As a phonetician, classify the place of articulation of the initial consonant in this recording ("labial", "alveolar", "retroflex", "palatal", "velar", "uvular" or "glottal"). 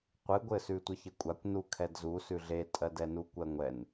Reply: uvular